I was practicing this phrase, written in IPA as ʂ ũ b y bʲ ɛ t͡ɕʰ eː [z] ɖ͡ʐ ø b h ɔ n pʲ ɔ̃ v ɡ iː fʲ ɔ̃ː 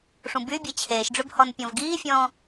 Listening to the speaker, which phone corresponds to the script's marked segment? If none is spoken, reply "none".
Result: ʃ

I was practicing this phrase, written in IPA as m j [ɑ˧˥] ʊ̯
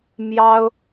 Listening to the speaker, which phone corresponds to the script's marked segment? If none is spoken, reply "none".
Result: ɑ˥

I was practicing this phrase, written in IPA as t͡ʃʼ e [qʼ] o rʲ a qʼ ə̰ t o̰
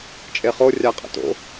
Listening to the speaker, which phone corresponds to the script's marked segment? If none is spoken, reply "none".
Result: χ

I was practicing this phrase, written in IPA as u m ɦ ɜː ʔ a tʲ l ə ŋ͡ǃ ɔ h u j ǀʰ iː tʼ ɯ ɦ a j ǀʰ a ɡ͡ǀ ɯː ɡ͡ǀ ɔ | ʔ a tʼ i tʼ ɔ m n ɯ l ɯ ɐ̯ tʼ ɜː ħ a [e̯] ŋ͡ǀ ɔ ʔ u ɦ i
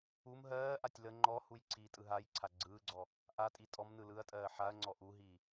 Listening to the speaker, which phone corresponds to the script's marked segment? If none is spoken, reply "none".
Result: ɐ̯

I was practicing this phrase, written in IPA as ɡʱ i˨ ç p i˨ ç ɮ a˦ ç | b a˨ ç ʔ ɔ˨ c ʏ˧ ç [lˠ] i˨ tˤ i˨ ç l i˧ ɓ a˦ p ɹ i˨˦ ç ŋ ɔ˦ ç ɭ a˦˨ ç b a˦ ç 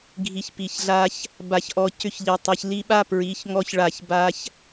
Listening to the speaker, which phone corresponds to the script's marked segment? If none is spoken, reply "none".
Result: ʎ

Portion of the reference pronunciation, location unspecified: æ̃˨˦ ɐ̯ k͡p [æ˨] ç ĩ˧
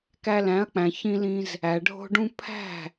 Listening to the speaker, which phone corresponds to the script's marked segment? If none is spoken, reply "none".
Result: æ̃˨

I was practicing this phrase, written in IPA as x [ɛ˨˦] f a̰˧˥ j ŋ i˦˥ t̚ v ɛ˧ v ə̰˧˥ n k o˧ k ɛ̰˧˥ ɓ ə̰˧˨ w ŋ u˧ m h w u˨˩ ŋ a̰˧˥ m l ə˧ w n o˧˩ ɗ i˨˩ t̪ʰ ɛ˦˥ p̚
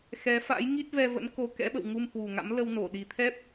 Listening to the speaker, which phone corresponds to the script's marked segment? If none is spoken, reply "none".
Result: ɛ˨˦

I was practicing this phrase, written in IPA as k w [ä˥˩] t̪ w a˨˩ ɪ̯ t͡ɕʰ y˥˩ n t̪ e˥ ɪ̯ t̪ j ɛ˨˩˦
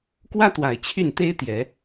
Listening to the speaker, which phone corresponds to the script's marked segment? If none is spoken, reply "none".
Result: ä˥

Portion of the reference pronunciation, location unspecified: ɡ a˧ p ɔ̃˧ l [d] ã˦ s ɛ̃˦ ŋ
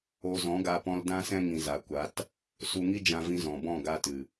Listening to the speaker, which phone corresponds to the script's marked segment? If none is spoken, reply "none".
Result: d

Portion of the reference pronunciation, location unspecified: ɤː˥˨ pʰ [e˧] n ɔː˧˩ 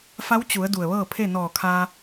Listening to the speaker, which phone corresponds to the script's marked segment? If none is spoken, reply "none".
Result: e˥˨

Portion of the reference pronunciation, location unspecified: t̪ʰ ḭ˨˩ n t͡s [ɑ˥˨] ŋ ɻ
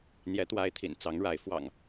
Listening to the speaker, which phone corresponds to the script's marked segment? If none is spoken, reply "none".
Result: ɑ˨˦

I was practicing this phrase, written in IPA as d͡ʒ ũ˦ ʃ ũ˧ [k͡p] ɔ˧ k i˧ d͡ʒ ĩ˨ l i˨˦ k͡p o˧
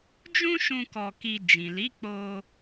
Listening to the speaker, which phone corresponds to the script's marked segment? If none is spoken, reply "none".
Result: k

